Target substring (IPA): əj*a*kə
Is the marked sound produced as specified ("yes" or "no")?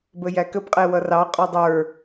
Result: no